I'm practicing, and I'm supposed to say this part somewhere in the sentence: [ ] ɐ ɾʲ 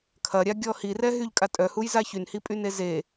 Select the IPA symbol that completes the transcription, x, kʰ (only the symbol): kʰ